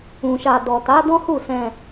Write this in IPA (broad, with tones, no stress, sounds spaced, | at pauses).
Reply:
ũ˧ ʃ a˧ d ɔ˨ t a˨˦ d ɔ̃˦ h u˦˨ s ɛ̃˧